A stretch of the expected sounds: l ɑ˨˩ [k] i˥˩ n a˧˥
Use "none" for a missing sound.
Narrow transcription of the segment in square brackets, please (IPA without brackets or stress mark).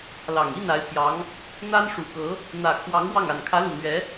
ŋ